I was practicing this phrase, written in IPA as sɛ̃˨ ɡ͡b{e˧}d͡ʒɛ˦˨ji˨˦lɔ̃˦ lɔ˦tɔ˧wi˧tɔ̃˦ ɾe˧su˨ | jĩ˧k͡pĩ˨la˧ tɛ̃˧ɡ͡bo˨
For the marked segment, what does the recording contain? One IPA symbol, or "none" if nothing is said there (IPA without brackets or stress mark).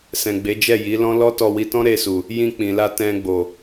e˨˦